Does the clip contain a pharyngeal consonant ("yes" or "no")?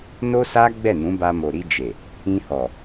no